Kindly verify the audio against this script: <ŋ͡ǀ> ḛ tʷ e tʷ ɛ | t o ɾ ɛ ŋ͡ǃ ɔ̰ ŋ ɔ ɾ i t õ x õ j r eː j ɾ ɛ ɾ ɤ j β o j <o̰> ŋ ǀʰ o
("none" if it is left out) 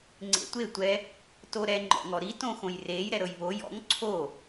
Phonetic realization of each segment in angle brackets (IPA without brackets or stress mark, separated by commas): ŋ͡ǀ, ɔ̰